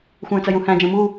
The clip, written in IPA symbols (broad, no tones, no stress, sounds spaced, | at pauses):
xʷ ə̃ː t͡s ɐ j ũ h æ̃ d͡ʒ ə̃ː m u